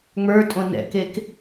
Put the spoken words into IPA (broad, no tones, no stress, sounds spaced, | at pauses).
ŋ͡m ə˞ tʼ õ n ɛ̰ k e k